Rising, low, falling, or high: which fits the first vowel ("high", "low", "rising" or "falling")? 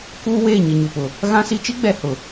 high